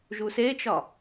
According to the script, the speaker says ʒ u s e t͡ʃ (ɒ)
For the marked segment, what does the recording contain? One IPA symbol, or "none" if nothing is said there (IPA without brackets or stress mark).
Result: ɒ